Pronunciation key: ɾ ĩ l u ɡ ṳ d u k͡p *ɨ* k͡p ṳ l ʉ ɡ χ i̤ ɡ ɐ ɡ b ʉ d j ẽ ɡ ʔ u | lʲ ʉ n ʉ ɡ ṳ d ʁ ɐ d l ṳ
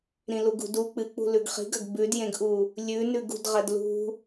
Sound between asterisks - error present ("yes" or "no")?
no